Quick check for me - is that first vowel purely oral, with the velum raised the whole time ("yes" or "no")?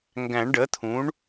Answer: no